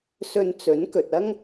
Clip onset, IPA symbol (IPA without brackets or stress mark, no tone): s